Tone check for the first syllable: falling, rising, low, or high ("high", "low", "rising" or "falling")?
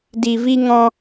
low